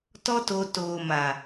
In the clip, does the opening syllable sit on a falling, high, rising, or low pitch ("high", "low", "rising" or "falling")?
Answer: high